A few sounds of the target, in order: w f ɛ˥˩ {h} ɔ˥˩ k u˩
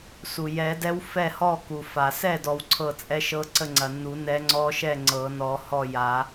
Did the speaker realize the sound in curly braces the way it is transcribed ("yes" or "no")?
yes